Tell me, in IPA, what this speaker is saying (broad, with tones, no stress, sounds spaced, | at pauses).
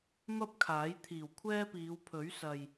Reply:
m ɐ˥ p̚ kʰ aː˨˥ j t̪ʰ iː˨˩ w kʷʰ ɛː˥ p iː˨˧ w pʰ ɵ˨˥ ɥ s ɐ˨ j